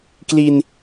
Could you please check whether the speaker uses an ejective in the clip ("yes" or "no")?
no